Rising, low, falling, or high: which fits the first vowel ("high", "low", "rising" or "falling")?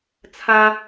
high